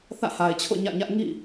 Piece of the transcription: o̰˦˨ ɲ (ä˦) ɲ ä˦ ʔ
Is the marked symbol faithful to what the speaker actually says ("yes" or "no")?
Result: no